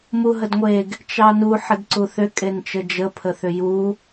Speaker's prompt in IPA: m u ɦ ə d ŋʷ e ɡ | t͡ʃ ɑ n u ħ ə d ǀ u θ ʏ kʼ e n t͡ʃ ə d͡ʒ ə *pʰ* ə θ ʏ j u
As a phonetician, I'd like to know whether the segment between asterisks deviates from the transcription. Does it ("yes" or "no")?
no